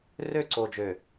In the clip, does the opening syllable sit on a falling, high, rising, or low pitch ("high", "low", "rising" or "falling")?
falling